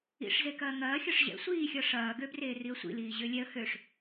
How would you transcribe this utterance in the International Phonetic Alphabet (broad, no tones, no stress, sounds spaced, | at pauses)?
ḭ ʂ z e k ɐː ŋ ɐː xʲ ɒ ʂ ʑ ɛ̰ sʷ iː xʲ ɒ ʂ ɐː ɡ ø b r eː r i ə̯ sʷ ḭ l iː ʑ ø lʲ ɛ ə̯ h ø ʂ